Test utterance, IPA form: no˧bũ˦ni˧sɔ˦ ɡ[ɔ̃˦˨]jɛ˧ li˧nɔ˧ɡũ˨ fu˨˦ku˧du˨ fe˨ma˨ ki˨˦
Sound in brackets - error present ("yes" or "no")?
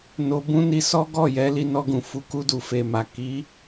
yes